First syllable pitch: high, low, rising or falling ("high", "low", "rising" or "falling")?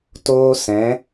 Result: high